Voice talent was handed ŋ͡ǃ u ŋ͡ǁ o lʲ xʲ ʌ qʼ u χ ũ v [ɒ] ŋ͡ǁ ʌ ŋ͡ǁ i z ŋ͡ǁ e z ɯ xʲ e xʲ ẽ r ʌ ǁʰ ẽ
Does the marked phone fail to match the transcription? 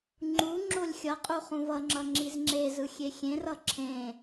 yes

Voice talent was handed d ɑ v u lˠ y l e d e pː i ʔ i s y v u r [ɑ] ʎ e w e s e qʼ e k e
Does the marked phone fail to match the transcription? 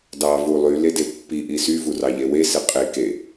no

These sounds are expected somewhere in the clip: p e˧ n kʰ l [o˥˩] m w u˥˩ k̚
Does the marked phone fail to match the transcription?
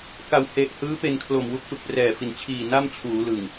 yes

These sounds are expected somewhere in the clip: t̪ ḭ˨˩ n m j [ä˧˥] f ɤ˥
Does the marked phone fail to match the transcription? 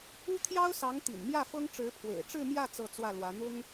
yes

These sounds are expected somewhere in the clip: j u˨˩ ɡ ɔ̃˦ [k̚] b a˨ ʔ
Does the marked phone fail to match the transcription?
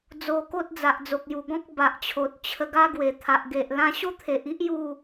no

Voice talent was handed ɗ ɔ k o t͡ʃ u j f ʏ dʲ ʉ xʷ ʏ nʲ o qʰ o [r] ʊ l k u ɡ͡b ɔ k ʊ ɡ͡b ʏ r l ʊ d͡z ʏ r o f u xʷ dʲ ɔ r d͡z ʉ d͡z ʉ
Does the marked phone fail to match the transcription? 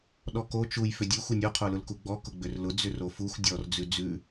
yes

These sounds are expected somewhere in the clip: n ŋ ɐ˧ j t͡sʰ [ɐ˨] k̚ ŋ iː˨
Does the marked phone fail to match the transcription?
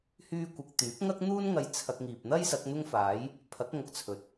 yes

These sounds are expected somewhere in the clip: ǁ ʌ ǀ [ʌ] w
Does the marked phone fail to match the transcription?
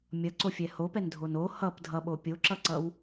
no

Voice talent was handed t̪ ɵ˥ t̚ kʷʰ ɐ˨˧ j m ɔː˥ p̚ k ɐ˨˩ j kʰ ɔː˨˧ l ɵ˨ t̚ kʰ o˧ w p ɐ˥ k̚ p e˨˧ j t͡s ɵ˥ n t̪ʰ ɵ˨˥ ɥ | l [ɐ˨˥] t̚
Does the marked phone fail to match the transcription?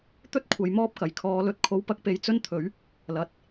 yes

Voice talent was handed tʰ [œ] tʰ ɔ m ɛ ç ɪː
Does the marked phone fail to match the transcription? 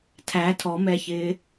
yes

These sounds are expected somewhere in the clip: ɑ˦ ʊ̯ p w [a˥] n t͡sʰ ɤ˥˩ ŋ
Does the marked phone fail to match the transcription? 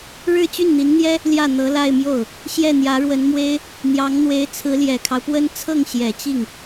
yes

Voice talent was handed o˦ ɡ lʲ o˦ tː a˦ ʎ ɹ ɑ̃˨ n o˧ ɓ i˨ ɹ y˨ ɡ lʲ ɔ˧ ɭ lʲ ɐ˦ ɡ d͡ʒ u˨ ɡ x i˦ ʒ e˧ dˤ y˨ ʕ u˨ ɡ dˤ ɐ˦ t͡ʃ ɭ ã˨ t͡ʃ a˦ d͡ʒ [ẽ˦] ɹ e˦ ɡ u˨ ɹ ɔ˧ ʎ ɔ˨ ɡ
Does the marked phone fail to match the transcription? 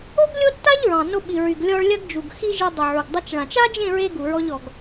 yes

